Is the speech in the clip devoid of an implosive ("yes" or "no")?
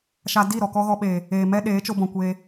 no